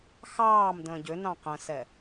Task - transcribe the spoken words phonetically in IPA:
xɑːmdə̃ː ɟʏnɑ̃ qə̃sɛ

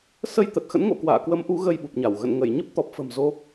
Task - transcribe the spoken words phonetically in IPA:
sə˧jt̪ə˨˩t̚ xə̰˧˥nŋo̰˧˨kwa̰ː˧˨kwə˨˦m ʔu˨˦ɣə˧jɓu˨˩p̚ɲa˧˩w ɣə̰˧˨nŋə˧˩j ɲə˦˥p̚ t̪ɔ˨˩p̚fə̤˨˩m zo˧

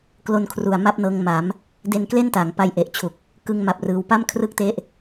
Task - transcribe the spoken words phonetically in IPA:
klo˧nkʰru˨˩a̯ ma˥˩p̚nɤː˧ŋ ma˩˦m | de˧nkle˥˩n ta˩˦ŋpa˧jʔe˨˩ʔ t͡ɕʰu˨˩k̚ | kɯ˧ŋma˨˩p̚ rɯː˧w pa˥˩mkʰrɯ˥˩k̚te˦˥ʔ

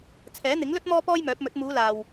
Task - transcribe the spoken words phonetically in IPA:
t͡sʰɛː˨˥n̪ɪ˨˥ŋlɵ˥t̚ mɔː˥pɔː˥jmœː˨˥p̚mɵ˨˥t̚ muː˨˧laː˨w

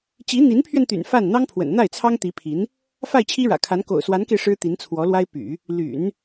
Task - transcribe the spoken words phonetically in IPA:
t͡ɕi˧˥n̪i˧˥npʰɥɛ˧n t̪y̰˨˩nfa˥˩n n̪ɑ˥ŋpʰwə̰˨˩n n̪a˥˩ɪ̯t͡sʰɑ˥ŋt̪i˧˥pʰi˧˥n | fa˥˩ɪ̯t͡ɕʰi˥ɻä̰˨˩kʰa˧˥n ko̰˨˩ʊ̯swa˧˥nke˧ɪ̯ ʂɻ̩˥t̪i˧˥nt͡sʰwɔ˧˥lwa˥ɪ̯ py̰˨˩˦ | ly̰˨˩˦n

